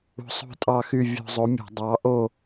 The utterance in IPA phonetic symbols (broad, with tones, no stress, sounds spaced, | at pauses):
ṳ˧˥ sˤ ṳ˥˧ tʼ ɑ˥˧ x y˥˧ vʲ ṳ˧ zˤ o˧˥ mʲ ṳ˧˩˧ dˤ ɑ˧˥ ʔ o˥˧